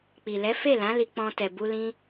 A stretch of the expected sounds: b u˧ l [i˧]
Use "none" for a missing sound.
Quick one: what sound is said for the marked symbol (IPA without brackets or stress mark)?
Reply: ĩ˧